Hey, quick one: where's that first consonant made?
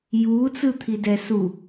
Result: palate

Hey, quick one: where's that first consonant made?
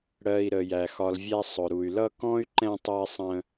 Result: retroflex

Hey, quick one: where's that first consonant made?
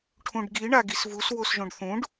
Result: retroflex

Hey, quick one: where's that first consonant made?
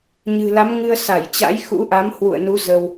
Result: palate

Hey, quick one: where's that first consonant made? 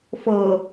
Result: lips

